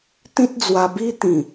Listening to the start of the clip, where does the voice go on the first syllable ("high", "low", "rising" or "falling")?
high